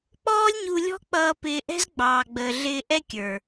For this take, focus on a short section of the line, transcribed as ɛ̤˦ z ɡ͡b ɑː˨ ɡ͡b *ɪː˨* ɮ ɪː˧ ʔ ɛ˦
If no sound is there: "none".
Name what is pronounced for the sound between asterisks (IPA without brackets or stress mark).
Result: əː˨